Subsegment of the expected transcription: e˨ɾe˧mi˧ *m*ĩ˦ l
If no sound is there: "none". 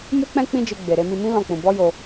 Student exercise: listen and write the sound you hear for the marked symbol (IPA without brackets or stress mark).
m